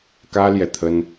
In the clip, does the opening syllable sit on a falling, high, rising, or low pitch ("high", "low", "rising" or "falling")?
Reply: high